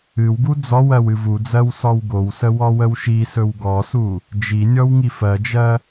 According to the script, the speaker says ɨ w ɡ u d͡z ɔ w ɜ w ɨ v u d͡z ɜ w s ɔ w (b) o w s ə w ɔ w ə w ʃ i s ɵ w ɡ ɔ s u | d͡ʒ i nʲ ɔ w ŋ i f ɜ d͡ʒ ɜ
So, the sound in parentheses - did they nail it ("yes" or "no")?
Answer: no